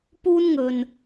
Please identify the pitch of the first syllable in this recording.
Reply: high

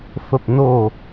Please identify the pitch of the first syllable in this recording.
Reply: low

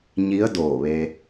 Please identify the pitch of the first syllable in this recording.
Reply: rising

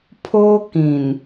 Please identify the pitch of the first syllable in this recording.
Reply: high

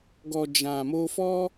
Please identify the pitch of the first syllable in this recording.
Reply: low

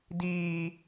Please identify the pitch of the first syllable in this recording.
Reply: high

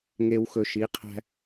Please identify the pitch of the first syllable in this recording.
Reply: low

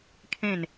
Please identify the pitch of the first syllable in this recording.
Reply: falling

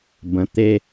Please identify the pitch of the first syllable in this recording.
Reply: rising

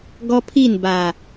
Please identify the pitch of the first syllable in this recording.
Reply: high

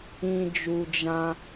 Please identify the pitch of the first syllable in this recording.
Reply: low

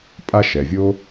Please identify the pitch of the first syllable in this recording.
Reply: high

